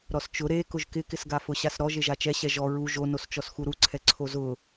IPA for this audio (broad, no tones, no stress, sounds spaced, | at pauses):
ɾ ɔ s t͡ʃ ʊ ɾ e k ʊ ʒ k ɪ k ɪ s ɡ a f ʊ ɕ a s ɾ ɔ ʒ e ʒ a t͡ʃ ɛ ɕ ɛ ʒ ɔ ɹ u ʒ o n o s t͡ʃ ɔ s x u ɾ u ǀʰ ɛ ǀʰ o z ʊ